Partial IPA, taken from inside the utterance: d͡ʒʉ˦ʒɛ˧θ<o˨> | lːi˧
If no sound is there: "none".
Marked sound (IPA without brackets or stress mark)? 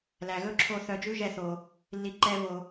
o˨